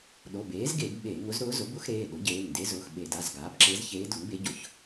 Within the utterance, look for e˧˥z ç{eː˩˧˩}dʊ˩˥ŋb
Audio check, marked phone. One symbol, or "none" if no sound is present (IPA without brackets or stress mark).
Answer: eː˧˥